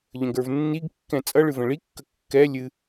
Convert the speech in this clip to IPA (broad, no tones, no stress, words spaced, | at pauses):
ʎə̃ɡə˞vnːiɡkːɛ̃ t͡sʼʌ ɭɨvə̃ɭikːə kːɛ lʲɨ